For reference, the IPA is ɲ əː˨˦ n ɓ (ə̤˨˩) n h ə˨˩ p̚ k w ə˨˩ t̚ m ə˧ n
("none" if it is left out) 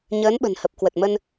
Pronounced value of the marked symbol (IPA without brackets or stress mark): ə̤˨˩